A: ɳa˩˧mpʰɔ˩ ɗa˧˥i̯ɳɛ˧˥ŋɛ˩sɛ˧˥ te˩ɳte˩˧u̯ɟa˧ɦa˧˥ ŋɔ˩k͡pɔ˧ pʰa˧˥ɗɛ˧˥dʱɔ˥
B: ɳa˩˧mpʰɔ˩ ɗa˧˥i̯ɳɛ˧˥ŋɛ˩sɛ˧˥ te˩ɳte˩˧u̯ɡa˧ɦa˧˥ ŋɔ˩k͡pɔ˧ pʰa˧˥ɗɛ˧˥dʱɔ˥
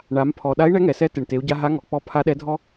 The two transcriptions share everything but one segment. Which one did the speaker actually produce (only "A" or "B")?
A